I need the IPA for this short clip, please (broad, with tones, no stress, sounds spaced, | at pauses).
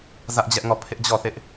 z ä˦ ʔ d͡ʑ ɛ˦ ʔ ŋ ɔ˦˨ pʰ ɪ˦ ʔ d͡ʑ ɔ˦˨ θ ɪ˦ ʔ